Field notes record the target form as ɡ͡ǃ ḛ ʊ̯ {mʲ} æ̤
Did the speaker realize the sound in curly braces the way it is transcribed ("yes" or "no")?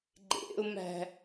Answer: no